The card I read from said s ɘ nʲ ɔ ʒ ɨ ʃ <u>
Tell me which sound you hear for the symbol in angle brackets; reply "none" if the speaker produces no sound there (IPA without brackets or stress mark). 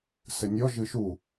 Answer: u